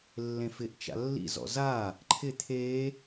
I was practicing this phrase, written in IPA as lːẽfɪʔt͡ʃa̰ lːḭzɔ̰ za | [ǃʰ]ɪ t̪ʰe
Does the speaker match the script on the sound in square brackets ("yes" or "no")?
yes